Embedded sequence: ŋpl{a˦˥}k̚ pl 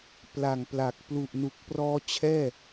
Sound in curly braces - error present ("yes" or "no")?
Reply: yes